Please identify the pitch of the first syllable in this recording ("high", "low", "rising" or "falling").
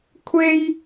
high